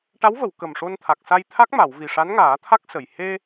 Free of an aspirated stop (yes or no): no